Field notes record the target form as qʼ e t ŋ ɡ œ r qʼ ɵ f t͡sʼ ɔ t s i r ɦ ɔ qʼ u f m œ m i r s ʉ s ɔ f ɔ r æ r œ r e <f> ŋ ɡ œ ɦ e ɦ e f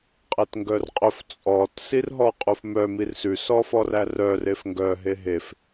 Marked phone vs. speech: correct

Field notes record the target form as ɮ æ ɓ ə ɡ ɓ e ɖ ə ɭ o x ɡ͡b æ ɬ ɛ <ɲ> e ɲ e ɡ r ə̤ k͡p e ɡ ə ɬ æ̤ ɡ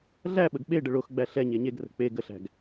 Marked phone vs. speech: correct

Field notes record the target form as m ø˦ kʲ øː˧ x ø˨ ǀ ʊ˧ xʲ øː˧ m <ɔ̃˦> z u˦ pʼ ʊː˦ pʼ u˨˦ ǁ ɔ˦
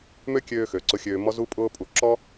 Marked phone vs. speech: incorrect: ɔ˦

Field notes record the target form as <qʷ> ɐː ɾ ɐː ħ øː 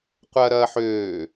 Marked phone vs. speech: correct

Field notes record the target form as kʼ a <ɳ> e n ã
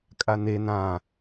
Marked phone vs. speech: incorrect: n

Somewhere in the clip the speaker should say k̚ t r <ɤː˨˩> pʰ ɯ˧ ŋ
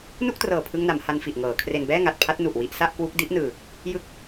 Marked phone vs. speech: correct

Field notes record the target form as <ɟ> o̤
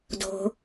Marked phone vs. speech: incorrect: d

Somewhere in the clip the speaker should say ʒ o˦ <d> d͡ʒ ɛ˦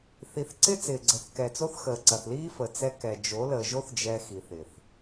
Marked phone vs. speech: incorrect: θ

